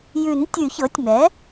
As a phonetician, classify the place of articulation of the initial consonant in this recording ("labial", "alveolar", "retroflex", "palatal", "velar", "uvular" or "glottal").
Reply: palatal